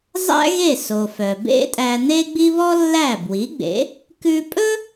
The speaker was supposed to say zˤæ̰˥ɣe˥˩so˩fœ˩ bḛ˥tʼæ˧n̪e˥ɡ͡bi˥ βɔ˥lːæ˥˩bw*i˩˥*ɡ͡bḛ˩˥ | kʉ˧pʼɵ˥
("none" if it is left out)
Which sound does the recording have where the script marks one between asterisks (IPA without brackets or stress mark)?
i˩˥